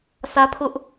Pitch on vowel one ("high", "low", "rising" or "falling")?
high